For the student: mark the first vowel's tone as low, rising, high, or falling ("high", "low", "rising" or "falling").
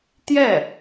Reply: falling